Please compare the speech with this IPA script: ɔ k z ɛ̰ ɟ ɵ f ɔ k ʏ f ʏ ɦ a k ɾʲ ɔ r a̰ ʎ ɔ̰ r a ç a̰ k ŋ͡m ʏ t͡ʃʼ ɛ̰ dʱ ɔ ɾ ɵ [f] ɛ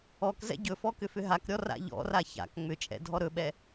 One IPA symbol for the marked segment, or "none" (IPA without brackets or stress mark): ɓ